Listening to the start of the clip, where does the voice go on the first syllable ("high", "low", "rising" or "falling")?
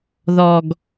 low